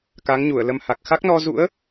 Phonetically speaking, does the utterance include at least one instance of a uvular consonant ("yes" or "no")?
no